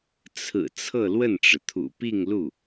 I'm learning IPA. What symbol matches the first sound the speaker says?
t͡sʰ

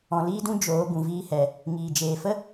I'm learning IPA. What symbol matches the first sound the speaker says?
ɔ̃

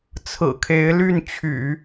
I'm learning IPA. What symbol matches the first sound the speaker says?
t͡sʰ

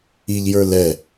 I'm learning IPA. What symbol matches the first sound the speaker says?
i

